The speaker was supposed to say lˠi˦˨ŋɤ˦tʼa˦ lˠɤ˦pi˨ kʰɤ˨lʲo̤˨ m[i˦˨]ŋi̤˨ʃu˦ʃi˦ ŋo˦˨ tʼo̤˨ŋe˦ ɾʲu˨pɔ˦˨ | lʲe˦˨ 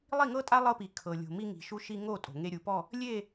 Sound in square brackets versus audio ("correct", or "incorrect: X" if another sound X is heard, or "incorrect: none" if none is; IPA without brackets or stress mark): incorrect: i˦